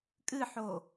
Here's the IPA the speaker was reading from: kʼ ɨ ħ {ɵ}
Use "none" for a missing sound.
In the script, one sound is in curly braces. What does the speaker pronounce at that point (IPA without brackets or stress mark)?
o